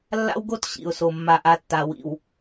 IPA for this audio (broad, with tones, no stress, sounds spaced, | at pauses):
lː a̰˦ w ɡ o˦ t ɕ ḭ˨ ʊ̯ s o˨ mː a˨ ʔ a˨ tː a˨ w ḭ˨ w